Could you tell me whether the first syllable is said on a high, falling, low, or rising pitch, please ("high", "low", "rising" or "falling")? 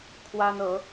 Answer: high